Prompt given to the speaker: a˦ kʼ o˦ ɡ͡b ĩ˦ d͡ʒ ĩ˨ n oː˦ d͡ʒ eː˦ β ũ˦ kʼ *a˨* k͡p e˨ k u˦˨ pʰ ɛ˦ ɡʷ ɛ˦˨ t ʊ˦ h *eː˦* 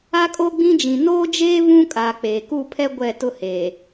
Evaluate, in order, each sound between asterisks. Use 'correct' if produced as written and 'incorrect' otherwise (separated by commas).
correct, incorrect